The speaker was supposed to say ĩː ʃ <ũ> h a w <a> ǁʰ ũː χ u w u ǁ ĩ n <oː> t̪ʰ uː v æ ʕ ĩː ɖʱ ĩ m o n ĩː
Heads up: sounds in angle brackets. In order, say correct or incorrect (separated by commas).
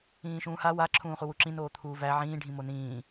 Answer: incorrect, correct, correct